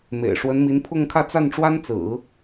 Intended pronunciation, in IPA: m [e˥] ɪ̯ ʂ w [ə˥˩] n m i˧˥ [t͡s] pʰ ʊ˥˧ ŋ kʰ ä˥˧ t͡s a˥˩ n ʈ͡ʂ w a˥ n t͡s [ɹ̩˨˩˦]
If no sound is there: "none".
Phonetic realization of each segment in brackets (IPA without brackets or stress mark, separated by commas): ḛ˨˩, ə˧˥, n, ɹ̩˨˩˦